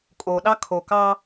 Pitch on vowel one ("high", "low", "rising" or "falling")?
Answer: low